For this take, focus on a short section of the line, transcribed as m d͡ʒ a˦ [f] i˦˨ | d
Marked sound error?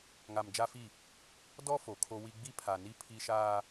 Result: no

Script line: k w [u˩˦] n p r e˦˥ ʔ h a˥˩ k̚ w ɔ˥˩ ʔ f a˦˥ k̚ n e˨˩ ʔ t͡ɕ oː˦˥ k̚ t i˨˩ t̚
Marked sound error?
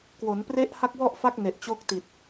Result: yes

